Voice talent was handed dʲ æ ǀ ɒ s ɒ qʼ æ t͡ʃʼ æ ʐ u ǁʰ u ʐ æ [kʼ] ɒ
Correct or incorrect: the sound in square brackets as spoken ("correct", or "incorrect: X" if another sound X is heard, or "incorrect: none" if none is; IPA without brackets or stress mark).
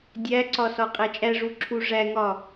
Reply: incorrect: ŋ